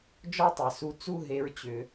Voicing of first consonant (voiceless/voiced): voiced